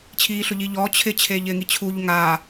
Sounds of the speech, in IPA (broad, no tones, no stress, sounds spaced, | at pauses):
t͡ɕʰ iː ɬ ʊ ʎ i ʎ ɔː t͡ɕʰ ɪ t͡ɕʰ eː ʎ ɪː ŋ i t͡ɕʰ u ʎ ŋ aː